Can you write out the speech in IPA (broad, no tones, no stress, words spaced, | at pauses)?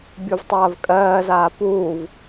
bʲuvtˤɐːvkʼɜːzaː puːv